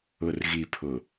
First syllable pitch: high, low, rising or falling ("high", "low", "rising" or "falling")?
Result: low